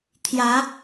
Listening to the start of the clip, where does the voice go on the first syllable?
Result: rising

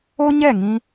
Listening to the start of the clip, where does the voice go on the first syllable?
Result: high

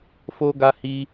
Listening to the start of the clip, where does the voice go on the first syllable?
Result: high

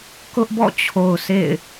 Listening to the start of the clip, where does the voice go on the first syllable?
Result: high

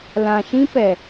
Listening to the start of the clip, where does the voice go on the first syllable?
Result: low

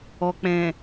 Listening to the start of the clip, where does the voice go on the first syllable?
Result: low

